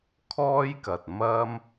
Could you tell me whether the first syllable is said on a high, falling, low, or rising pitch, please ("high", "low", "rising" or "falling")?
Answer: high